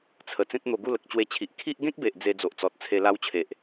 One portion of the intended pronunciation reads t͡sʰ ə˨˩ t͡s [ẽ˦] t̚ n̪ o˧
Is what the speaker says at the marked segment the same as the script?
yes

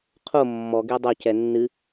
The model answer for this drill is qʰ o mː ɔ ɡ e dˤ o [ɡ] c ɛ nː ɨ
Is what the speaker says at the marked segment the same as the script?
no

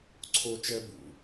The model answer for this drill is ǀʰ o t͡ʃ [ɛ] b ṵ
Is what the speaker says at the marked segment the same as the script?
yes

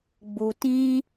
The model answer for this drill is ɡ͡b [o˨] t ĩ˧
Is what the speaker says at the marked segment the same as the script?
no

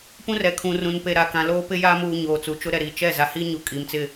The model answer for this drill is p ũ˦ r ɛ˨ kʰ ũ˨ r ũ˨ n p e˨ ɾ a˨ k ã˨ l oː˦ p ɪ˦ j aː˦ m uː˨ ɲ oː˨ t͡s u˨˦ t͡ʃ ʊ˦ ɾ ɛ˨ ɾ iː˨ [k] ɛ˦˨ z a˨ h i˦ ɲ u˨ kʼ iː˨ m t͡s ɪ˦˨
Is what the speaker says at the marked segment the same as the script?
no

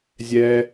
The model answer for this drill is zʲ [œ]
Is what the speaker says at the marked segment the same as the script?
no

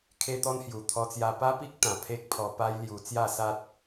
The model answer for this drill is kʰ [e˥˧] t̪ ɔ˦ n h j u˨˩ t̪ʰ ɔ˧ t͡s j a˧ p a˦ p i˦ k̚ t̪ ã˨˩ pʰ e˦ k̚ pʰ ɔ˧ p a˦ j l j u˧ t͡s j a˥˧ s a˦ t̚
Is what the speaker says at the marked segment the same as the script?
no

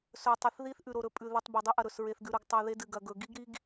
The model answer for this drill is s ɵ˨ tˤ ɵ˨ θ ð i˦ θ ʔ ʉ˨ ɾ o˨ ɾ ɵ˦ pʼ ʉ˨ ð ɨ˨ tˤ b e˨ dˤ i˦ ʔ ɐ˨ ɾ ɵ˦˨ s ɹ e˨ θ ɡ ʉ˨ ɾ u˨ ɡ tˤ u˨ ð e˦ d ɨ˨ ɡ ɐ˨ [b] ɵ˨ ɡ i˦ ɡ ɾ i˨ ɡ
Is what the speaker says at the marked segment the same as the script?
no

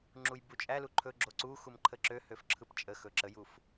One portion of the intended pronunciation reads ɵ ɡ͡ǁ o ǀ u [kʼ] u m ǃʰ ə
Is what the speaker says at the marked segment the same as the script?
no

